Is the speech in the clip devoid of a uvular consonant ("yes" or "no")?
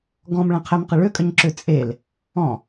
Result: no